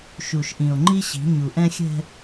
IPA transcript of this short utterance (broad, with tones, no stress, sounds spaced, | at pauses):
ʃ u˨ ʃ ʔ ĩ˨ o̯ ŋ͡ǃ i˦ ɕ i̤˨˦ ɲ u˨ ʔ ɛ̃˦ xʲ ɛ̤˦